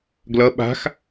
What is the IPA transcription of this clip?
ɡlʌ ɓa̤x

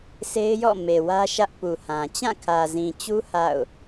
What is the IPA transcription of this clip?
se˦ɪ̯jɔ̰˦˨me˨wä˦ ʃä˦ʔpu˨hã˨ t͡ɕã˦˨kʰä˨zĩ˨t͡ɕu˦ ha̰˦˨ʊ̯

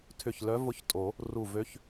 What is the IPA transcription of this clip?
tʰʏ˧˩ç lœ˧˥vʊ˧˥çtʼo˨˩˦ | ru˧˩vø˧˥ç

